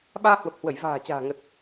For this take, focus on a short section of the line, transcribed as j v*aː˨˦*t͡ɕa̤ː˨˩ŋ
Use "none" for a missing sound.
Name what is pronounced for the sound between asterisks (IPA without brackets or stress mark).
a̤ː˨˩